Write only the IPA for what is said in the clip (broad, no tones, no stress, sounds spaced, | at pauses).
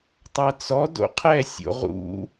tˤ a t͡s ɔ d o̰ qʰ ɛ sʲ o̰ ʁ ṵ